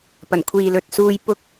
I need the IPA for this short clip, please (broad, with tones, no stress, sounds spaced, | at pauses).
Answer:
p ɐ˨˩ n kʷʰ iː˨ l ɵ˨ t̚ s uː˧ j p ʊ˧ k̚